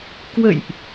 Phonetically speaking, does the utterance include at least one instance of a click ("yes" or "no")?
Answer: no